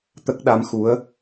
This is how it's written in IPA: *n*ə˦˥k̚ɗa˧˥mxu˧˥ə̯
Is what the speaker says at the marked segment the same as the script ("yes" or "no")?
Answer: no